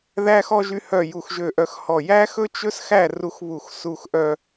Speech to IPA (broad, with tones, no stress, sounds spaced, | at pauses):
ð æ˥ x ɔ˥ ʒ y˥ h œ˥˧ j u˥˧ x ʒ ø˥˧ ʔ œ˥ x h ɔ˥˧ j æ˥ x ɵ˥ t͡ʃ ɵ˥ s x æ˥˧ r u˥ x β u˥˧ x s u˥˧ x ʔ œ˥